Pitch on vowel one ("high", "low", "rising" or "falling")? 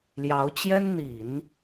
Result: rising